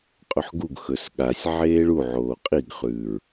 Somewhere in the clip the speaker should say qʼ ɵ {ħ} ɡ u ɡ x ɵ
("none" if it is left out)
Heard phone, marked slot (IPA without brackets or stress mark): ħ